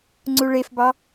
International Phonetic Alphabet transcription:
ŋ͡ǀ u ɭ e f b ɑ

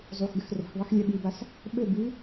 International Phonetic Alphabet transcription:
zˤ u x ɡ ɘ x r o̤ x ðˤ i x lʲ ɛ ɓ i b a s | ɓ ɘ b ɨ

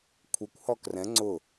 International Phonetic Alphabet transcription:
kʷʰ ə kʷ h ɔ k r ɛ̃ ŋ͡ǀ ʊ

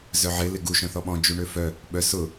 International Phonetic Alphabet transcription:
z œ ʕ ɪ l ɪ ɡ u ʃ œ̃ θ ɔ ɓ ɔ̃ d͡ʒ u ɳ ø f œ | ɓ œ s ʊ

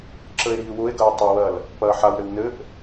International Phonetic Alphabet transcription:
ǁ ə e̯ ɾ iː w ʊ e̯ ɡ ɐ e̯ tˤ ʊ w ɐ l | p ɐː ħ a w ɾ ɘ w n ɘ ʔ

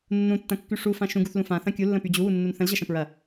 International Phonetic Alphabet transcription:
nː ũ tː ɐ̃ kː y ʂ u f ã ʃ ũ ɡ u θ l ũ f ã θ ɐ̃ kʲ u lː ə̃ p y d͡ʑ u w u nː u n θ ə̃ l ʑ ɐ ʃ ɐ̃ p ɹ ɐ

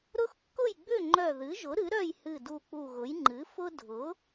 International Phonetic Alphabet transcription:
ɾ ʊ˦ x kː ʊ˥˨ j ɡ͡b ʏ˥˨ ŋ͡ǃ œ˧˩ ð ɨ˩˥ ʒ ʊ˩˥ ɾ ɨ˩˥ ɾ œ˥˨ j h ɨ˧˩ d u˧˩ k͡p u˧˩ ɣ ʊ˩˥ j ŋ͡ǃ ɨ˩˥ f ʊ˦ dʱ ʊ˩˥

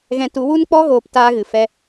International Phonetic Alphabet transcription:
ɣ ɛ̃˧ t u˨˦ w u˦ n k͡p ɔ˦ ɣ oː˧ p t aː˦ ɣ ɨ˨ f ɛ˦

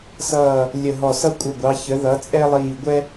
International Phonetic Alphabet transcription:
s ʌː˧˩ | lʲ ə˧˩ ɦ ɔ˧˩ s ʌ˥ kʷʼ ə˧˩ ɡʷ ɑ˩˧ ç ə˩˧ ð ʌ˩˧ t͡sʼ ɛ˥ lˠ iː˧˩ ɡʷ ɛ˥

